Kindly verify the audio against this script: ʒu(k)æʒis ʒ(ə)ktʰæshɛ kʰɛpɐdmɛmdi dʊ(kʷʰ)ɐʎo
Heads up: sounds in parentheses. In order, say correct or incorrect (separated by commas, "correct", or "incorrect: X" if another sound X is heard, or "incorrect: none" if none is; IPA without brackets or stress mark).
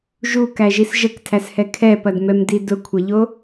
correct, correct, correct